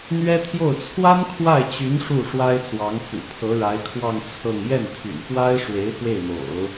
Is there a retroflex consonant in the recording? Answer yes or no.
yes